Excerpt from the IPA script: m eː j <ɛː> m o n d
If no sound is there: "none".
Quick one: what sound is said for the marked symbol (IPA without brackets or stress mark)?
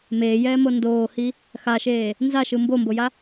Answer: ɛː